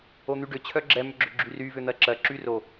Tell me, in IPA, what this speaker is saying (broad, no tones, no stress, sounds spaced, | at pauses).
o n̪ y ɖ ʏ t͡ɕʰ œ ɡ͡ǁ ɛ m ʏ ɡ͡ǁ ʏ ɡ͡ǁ y r y v ʏ n̪ ɜ ǁ ɜ ǁ y r o